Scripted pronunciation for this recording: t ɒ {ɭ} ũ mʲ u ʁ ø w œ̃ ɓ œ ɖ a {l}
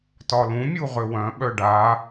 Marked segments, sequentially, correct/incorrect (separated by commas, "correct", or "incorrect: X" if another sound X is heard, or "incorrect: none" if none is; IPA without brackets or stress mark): incorrect: l, incorrect: none